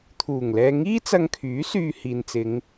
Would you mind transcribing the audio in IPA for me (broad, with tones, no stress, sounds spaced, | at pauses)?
t̪ʰ uː˨˩ ŋ l ɛː˧ ŋ iː˥ t͡s ɐ˧ ŋ kʰ yː˨˥ s yː˧ h iː˨ n t͡s ɪ˨˧ ŋ